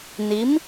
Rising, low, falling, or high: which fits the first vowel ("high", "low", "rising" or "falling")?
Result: rising